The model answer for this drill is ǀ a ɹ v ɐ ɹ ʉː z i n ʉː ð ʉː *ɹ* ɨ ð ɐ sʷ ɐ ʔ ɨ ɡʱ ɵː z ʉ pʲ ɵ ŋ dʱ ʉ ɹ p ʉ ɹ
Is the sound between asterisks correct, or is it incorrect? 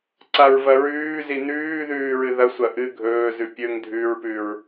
correct